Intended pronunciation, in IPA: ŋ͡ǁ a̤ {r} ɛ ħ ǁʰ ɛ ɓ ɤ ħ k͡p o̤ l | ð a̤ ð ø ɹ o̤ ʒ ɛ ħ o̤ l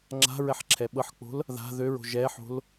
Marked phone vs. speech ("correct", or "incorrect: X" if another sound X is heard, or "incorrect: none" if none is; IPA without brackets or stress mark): incorrect: ɹ